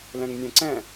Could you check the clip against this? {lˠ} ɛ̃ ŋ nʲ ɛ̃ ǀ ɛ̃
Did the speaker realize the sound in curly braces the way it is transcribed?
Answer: no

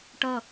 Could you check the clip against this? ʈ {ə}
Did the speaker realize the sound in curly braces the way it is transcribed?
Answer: no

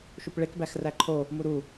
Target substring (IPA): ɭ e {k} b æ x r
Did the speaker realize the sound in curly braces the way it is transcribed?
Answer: yes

